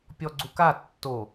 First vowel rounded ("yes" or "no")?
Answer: yes